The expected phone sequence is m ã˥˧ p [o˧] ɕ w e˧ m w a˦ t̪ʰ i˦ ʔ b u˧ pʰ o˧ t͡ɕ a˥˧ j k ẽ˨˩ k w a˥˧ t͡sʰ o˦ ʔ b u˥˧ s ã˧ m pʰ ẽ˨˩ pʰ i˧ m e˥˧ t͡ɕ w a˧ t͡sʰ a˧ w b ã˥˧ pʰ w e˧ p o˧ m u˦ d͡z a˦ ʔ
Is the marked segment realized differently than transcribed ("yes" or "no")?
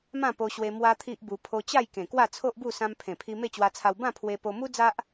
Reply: no